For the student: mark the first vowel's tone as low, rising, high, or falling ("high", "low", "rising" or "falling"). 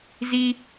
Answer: high